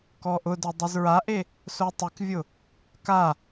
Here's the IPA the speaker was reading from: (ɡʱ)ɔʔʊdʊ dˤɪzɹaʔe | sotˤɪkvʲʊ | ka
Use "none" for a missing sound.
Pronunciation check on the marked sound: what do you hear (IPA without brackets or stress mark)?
k